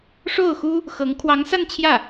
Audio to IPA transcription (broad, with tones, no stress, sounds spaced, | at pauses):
ʂ o˥˩ ʊ̯ x u˥ | x ɤ˧˥ ŋ kʰ w ɑ˧˥ ŋ s a˥˧ n t͡ɕʰ j ä˥˩